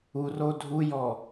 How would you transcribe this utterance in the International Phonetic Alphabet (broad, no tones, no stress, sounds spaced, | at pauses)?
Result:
u r o dʱ u j ɔ